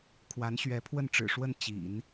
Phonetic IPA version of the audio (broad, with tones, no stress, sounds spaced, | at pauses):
kʰ w a˧˥ n ɕ ɥ ɛ˧˥ pʰ w ə˥˩ n ʈ͡ʂ ɻ̩˨˩ ʂ w ə˥˩ n t͡ɕ ḭ˨˩˦ n